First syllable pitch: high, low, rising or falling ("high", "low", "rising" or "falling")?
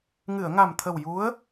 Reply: low